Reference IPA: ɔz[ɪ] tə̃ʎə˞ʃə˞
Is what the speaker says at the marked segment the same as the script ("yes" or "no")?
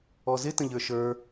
yes